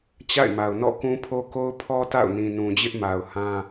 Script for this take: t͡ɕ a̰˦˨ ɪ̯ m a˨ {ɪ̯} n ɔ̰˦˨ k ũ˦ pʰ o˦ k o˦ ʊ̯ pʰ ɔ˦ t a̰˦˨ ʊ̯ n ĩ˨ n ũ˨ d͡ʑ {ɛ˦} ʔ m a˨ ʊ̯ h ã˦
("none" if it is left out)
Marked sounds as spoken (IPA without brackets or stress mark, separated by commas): ʊ̯, ɪ˦